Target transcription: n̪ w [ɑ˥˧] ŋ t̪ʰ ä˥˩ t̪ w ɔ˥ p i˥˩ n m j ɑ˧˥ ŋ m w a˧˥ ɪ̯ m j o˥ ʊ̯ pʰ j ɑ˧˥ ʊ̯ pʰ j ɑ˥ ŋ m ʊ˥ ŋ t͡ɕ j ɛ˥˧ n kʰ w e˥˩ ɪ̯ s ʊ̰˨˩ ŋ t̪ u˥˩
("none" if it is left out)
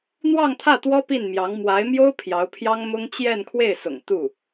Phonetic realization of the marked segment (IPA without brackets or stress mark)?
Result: ɑ˥˧